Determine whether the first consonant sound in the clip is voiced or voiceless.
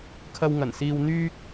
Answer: voiceless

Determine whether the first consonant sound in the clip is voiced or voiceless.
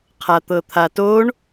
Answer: voiceless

